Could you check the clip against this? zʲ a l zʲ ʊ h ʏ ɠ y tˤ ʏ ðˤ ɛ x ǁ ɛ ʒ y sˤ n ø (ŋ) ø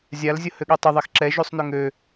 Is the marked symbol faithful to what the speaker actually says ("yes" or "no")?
yes